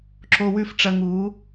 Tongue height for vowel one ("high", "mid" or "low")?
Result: mid